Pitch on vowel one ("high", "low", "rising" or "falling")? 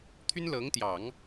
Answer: high